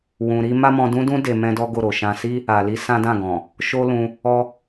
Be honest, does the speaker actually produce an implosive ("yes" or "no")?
no